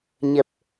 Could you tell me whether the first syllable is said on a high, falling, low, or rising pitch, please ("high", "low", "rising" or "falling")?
low